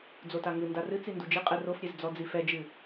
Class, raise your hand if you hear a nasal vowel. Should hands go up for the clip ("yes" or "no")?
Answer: no